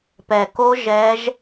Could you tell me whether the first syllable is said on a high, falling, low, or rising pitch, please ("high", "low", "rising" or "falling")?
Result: low